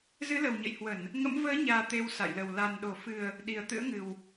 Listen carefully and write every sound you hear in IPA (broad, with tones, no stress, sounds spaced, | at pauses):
z ɨ˨˦ l ə˨˩ w ɲ ə̰˧˨ j h w ə˧˩˨ n | ŋ ə̰˧˥ m v əː˨˦ ɲ aː˨˩ t̪ e˧ w s a̰˧˨ j l ə˨˩ w l a˨˩ n ɗ o˧˩ f ɨ˨˩ ə̯ | ɗ i˨˩ ə̯ t̪ ɨ̰˧˥ ə̯ ŋ ɨ˨˩ w